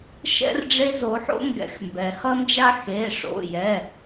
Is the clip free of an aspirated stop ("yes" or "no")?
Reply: yes